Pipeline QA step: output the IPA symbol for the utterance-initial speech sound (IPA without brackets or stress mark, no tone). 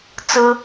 t͡s